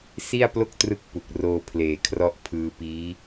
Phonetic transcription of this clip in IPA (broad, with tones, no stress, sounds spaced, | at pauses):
s i˥˩ a̯ p l o˥˩ k̚ t r ɯ˦˥ k̚ p u˨˩ k̚ r oː˧ pʰ l eː˨˩ kʰ r ɔ˦˥ ʔ pʰ ɯː˧ p iː˦˥